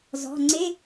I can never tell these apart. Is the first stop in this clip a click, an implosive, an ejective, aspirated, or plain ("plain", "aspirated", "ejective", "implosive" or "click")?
click